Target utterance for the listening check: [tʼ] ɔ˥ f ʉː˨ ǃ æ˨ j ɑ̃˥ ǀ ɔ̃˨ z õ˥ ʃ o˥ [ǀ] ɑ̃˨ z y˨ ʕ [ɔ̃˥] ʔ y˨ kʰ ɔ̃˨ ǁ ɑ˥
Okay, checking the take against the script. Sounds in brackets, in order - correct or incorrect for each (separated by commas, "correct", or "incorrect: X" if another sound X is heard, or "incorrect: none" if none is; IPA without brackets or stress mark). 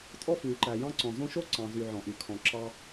correct, correct, incorrect: ɔ̃˨